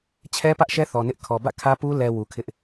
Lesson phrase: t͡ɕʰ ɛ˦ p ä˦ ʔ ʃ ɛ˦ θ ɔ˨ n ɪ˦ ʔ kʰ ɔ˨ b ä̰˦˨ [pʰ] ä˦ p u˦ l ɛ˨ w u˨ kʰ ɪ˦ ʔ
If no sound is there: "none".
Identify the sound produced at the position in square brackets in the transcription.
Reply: kʰ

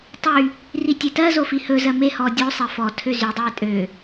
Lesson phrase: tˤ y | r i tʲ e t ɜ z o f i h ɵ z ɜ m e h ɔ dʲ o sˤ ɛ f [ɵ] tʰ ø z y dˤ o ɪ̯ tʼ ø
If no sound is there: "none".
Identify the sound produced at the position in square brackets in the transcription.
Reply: ɔ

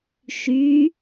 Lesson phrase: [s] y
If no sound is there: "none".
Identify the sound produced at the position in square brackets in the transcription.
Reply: ʃ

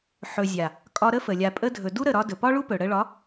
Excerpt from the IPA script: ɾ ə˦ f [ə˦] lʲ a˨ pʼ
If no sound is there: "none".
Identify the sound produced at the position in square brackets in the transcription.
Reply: ə˨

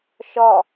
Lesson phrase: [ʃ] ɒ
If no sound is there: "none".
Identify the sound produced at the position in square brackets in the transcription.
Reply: ʃ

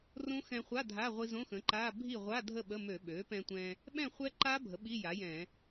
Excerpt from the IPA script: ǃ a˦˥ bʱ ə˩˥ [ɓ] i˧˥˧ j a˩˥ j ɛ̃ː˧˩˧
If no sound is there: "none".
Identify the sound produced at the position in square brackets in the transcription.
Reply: ɓ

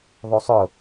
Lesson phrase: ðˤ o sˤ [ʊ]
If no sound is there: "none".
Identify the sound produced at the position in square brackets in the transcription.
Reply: ʊ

